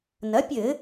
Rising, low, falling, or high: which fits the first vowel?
rising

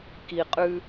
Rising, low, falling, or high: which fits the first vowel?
low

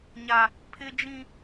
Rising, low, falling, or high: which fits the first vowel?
high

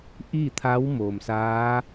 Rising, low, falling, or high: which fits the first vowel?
falling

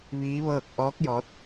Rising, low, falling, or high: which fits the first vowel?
rising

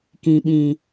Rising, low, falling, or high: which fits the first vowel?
low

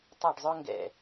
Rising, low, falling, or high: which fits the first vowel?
falling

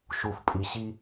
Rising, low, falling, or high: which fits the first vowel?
low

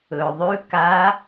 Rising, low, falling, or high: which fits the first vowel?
low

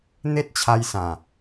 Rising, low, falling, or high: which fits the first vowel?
high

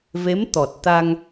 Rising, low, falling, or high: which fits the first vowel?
rising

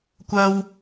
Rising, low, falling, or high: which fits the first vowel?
high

